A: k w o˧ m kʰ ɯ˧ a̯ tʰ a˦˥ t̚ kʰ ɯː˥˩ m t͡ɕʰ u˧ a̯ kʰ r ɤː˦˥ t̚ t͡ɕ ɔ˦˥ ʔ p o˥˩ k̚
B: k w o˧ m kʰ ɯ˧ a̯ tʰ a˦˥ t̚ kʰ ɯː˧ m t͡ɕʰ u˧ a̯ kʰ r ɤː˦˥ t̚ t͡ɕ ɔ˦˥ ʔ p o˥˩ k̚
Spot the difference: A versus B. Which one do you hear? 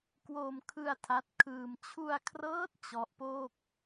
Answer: B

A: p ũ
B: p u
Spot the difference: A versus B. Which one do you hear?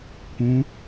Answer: A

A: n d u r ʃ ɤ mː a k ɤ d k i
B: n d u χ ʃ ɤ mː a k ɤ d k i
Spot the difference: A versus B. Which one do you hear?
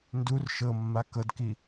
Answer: A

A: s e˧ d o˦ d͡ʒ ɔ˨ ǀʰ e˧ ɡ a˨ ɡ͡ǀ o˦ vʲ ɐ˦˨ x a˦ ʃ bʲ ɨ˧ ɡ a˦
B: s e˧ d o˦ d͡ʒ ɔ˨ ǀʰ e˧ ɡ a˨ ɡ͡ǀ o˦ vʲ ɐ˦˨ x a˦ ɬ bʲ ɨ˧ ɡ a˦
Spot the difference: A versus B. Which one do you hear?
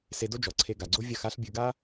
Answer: B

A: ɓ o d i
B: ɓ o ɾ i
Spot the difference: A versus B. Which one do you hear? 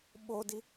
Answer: A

